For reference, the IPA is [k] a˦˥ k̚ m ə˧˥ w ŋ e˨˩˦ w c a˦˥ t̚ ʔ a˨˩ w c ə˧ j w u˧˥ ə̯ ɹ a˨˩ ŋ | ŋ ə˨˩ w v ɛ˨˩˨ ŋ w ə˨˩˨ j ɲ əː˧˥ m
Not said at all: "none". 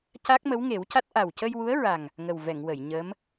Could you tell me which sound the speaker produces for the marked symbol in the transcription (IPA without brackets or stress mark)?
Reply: c